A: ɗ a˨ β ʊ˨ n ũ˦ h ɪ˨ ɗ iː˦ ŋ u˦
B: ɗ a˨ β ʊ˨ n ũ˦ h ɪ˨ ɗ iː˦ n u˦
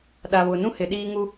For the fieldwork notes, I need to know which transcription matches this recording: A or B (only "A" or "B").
A